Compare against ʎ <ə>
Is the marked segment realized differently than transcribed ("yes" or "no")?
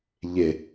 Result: yes